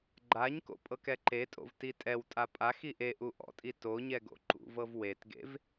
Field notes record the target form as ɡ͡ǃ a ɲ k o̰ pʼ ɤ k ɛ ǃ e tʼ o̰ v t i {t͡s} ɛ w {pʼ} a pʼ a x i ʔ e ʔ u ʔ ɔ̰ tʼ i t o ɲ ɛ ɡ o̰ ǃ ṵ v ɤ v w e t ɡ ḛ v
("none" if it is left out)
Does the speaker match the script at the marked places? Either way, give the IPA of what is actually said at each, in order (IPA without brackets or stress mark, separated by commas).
tʼ, tʼ